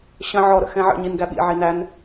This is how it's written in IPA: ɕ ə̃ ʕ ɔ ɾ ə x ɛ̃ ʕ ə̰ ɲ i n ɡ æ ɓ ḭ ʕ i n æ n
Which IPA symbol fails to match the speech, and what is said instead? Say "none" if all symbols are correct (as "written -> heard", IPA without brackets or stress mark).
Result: ə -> ə̰